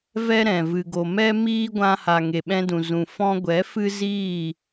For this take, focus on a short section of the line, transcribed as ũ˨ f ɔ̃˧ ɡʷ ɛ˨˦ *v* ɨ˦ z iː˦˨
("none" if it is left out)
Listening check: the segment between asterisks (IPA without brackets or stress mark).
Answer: f